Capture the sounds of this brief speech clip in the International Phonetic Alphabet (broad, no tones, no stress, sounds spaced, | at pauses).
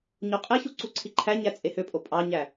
ɲ o qʼ e ç u ǀ u ǀʰ i ǃʰ æ ɲ æ t͡sʼ e h ø pʼ o pʼ ɑ ɲ æ